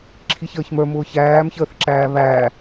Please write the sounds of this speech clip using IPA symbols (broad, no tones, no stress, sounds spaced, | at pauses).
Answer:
ǁʰ i ç əː ç m ə˞ m ʊː ç æː m ç əː θ ǁ æː β æː